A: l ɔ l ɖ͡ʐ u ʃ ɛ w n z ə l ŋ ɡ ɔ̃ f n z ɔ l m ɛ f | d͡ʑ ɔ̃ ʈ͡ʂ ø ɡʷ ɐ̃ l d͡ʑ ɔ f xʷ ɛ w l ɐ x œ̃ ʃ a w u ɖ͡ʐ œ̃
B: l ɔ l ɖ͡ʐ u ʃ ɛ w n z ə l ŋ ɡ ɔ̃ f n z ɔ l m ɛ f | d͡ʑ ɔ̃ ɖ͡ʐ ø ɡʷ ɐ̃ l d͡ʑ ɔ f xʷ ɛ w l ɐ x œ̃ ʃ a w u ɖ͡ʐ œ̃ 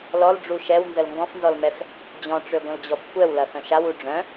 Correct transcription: A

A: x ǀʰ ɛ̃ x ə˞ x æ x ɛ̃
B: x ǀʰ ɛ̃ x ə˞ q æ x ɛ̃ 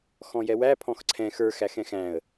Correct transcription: A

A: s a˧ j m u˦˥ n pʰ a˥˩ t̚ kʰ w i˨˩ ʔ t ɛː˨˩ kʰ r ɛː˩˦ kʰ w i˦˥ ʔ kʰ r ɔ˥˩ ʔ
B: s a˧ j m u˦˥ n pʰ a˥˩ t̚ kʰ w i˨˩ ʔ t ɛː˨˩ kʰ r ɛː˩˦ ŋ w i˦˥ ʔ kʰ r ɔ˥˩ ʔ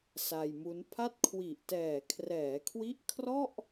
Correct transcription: A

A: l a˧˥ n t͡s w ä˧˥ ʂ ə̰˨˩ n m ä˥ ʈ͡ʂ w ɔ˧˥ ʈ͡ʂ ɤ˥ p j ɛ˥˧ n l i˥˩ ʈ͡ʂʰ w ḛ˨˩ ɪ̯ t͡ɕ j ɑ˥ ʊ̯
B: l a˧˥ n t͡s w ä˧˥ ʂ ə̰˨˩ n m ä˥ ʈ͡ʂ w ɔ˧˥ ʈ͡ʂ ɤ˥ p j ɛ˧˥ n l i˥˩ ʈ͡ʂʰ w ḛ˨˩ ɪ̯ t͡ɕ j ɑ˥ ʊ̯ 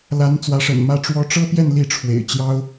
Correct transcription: A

